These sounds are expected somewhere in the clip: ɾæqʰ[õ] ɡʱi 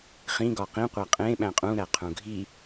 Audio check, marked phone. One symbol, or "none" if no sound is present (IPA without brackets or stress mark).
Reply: ũ